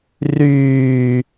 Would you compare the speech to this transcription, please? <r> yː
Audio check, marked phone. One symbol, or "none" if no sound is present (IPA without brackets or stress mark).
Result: r